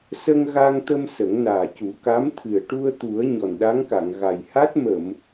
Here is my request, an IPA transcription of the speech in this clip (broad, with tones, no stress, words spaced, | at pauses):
sə˧ŋ ɣa˧ŋt̪ə˧m sə˨˩˦ŋnaː˨˩cu˨˩˦ ka˧˥mt̪ʰɨ˨˩ə̯ ʈu˧ə̯t̪u˨˩˦ə̯ ɲɔ˨˩nɗa˧˥ŋka˨˩˨ŋɣa˨˩j ha˦˥t̚ mə˨˩˨m